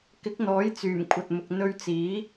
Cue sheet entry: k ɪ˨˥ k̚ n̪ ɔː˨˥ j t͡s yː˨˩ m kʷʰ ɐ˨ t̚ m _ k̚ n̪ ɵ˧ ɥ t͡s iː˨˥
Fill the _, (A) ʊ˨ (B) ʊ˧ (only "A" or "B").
A